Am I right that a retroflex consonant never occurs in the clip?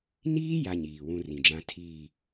yes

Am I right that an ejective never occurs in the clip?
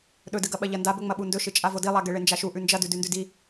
no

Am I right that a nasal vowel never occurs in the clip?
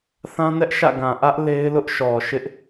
no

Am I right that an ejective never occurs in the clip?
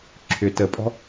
no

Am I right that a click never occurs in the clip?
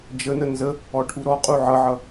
yes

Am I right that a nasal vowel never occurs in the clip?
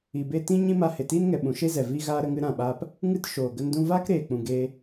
no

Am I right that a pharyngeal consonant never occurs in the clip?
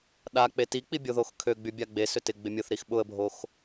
yes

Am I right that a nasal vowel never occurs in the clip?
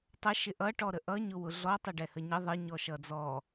yes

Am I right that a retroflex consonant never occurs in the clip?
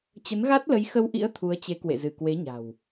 yes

